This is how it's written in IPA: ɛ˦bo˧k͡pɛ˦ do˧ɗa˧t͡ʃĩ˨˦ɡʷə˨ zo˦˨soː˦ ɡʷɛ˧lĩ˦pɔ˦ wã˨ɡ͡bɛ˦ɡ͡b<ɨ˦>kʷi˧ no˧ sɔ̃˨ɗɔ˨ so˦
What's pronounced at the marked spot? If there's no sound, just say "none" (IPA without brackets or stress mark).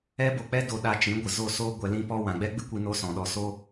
ɨ˦